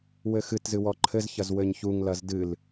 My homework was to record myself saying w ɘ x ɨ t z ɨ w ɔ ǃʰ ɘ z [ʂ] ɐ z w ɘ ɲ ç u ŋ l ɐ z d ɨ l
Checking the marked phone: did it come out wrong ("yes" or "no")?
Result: yes